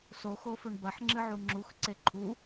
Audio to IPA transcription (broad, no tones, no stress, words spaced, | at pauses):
soxofɵɳ bɐħŋ͡ǁɨʕu ŋ͡ǁuxǀe ǃʰu